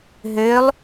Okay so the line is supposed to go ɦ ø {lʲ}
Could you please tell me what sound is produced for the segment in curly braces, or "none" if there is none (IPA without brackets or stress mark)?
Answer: lˠ